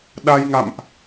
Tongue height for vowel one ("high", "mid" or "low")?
low